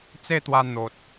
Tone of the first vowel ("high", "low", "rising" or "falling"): falling